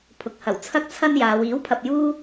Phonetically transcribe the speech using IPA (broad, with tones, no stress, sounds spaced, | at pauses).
pʰ ʊ˨˥ k̚ h ɐ˨˩ w t͡sʰ ɐ˥ k̚ t͡sʰ ɐ˥ n j aː˨˧ w iː˨˥ w pʰ ɐ˨ p̚ j uː˥